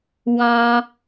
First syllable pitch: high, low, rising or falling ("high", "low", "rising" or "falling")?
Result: low